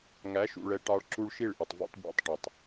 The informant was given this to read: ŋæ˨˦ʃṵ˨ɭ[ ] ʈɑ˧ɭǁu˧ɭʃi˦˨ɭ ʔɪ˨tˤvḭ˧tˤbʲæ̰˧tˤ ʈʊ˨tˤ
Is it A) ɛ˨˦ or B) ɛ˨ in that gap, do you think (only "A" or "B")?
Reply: A